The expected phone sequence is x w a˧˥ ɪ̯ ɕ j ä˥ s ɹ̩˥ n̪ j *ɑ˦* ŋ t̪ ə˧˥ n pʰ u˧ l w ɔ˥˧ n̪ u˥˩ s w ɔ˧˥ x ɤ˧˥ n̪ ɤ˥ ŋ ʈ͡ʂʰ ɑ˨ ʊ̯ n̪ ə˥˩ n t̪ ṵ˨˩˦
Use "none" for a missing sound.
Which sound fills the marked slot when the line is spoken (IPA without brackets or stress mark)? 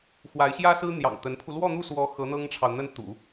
ɑ̰˨˩